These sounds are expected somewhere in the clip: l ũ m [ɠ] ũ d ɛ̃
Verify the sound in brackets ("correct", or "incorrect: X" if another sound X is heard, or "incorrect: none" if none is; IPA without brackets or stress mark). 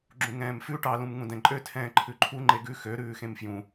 incorrect: ŋ